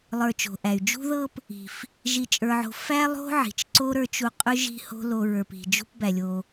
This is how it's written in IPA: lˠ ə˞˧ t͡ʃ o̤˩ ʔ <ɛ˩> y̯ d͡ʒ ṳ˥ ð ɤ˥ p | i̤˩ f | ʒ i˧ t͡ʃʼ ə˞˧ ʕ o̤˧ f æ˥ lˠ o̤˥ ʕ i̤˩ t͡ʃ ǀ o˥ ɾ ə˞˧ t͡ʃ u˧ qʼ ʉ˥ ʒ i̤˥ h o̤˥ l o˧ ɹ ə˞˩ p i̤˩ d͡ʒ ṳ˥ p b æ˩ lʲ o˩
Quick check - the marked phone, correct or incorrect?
incorrect: æ˩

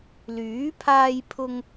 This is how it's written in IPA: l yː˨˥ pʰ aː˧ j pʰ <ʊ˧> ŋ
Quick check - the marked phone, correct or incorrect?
correct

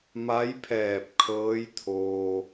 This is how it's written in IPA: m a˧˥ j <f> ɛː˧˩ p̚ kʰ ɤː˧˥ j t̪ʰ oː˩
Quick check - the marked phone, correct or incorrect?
incorrect: pʰ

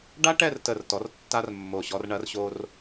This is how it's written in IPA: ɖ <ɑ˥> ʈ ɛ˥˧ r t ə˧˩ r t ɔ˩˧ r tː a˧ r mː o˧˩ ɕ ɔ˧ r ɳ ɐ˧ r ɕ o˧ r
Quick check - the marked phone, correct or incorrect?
incorrect: a˥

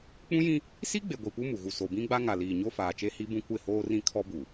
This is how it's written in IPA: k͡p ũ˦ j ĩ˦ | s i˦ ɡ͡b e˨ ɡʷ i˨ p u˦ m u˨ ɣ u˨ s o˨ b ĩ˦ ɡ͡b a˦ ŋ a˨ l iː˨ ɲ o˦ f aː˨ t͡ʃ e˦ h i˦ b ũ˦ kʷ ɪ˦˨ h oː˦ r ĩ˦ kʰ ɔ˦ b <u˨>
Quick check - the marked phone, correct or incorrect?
correct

